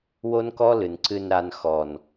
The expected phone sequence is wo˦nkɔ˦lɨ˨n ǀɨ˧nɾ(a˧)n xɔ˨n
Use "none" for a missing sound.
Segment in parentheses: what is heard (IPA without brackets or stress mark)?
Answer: a˧